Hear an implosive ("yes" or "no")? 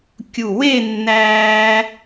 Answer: no